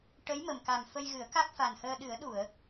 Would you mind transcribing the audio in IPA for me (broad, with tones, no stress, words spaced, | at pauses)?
ʈə˧˥jmə˨˩mka˨˩m fə˧jɣɨ˨˩˦ə̯ ka˦˥k̚fa˨˩nhəː˧ ɗɨ˨˩˦ə̯ɗu˨˩˨ə̯